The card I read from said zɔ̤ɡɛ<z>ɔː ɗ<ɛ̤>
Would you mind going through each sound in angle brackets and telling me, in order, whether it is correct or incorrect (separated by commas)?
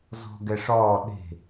incorrect, incorrect